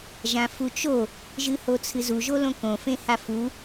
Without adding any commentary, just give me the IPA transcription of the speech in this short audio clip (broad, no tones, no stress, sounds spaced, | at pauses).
ʒ ã f u t͡ʃ o | ʒ ɨ h o t͡sʰ ɨ z u ʒ o l õ k õ f ẽ h a f u